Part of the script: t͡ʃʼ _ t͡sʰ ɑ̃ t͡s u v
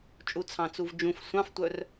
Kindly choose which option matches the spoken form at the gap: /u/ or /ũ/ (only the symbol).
u